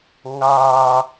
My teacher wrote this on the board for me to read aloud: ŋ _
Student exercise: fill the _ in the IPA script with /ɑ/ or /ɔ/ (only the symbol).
ɑ